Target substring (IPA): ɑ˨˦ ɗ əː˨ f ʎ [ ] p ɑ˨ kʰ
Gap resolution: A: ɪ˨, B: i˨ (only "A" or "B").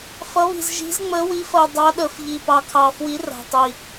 B